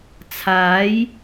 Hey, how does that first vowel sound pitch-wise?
rising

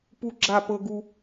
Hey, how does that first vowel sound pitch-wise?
high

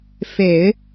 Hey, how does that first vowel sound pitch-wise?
low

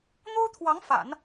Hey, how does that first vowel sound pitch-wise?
high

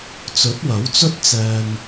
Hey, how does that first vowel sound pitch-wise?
rising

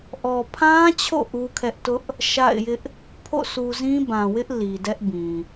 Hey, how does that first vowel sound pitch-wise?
low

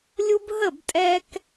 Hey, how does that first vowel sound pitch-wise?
high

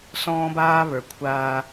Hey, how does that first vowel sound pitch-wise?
high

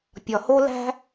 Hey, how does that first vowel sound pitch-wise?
low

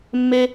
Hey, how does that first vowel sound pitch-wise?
high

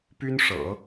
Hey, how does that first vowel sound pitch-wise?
high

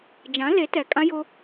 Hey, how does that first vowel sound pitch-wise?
rising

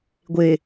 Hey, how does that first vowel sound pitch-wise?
low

